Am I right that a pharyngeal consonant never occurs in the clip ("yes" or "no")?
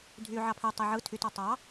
no